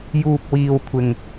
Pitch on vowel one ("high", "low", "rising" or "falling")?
low